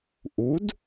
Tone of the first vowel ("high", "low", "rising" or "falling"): rising